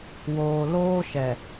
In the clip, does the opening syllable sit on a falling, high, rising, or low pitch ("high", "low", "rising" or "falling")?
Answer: low